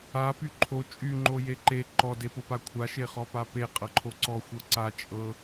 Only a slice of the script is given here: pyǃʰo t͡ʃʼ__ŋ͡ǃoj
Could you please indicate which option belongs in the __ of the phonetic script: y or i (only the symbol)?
y